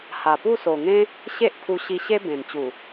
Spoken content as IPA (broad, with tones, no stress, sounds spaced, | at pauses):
h a˨˩ p u˥˧ s o˨˩ ŋ ẽ˦ | ɕ e˦ ʔ pʰ u˧ ɕ i˧ ɕ e˦ b ẽ˨˩ n t͡ɕ u˨˩